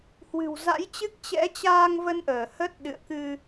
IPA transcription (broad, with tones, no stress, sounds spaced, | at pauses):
h w ɨ̤˨˩ w z a̰˧˥ j t͡ɕ ɨ˦˥ k̚ t͡ɕ ɛ̰˧˥ t͡ɕ aː˧ ŋ v ə˧ n ʔ əː˧˩ h ə˦˥ t̚ ɗ ɨ̰˧˨ ə̯ k ɨ˧